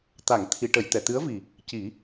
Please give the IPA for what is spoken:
t̪ a˨˩˨ ŋ t̪ʰ i˨˩˨ ʈ ə˨˩˨ j t̪ ɛ˨˩˨ t̪ ɨ˧˥ ə̯ v i˨˩ | c i˨˩˦

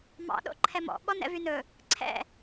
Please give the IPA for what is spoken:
m ɑ̰ ɗ o̰ ǃʰ ɛ m ɔ̰ ɓ ɔ n ɛ̰ v y n ɵ | ǀʰ ɛ̰

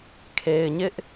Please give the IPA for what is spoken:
kʰ e˨ ɪ̯ ɲ ɪ˦ ʔ

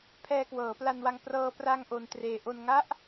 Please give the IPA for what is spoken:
pʰ ɛː˧ k w ɤː˩˦ p l a˧ n w a˧ ŋ p r ɤː˧ p r a˧ ŋ ʔ o˧ n t r eː˧ ʔ o˧ n ŋ a˦˥ ʔ

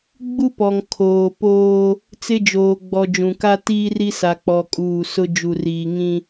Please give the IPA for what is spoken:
ɡ͡b u˦ p ɔ˨ ŋ kʰ oː˨ p oː˦ | t͡s ɪ˦ d͡ʒ oː˨ ɡ͡b ɔ˨ d͡ʒ ũ˨ k a˦ t iː˦ r i˦ s a˨ k͡p ɔ˨ kʼ uː˨ s ʊ˦ d͡ʒ u˨ r iː˨ ŋ ĩ˦

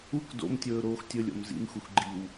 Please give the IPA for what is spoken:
u k d o̰ m tʲ ɵː ɾ oː x tʲ ɵ lʲ o̰ m z ḭ m x u x ɡ͡ǃ i w

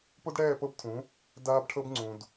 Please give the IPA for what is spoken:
p o˦ d ɽ ɛː˦˨ p ɤ˦ b tʰ ũ˨˦ | d aː˦ b ʈʰ ɤ˦ b ŋ͡ǀ ũ˨ d

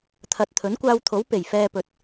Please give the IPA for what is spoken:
t̪ʰ ɐ˨ t̚ t̪ʰ ɵ˨˥ n kʷ aː˧ w t̪ʰ o˨˥ w p e˨˩ j f ɛː˧ p ɵ˨ t̚

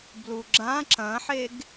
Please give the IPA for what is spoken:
b l u ɡ͡ǁ ã ǁ ɐ̃ ħ e ɡ

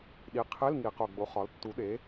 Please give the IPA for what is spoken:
ɗ i˩˥ qʰ e˧˥˧ l ŋ i˨˩˦ q o˨˩ ɡ͡b o˩˥ χ ɒ˩˥ l tː u˩˥ ɗ e˩˥

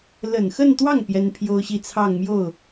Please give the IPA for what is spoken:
l ə˨˩ n x ə˥˧ n t̪ w ɑ˥˩ ŋ p j ɛ˥ n pʰ j o˥ ʊ̯ ɕ i˥˧ t͡sʰ ɑ˥˧ ŋ m j o˥˩ ʊ̯

